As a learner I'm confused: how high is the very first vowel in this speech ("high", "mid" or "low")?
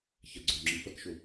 low